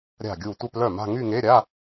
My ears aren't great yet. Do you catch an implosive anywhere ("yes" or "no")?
no